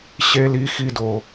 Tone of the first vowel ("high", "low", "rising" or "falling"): high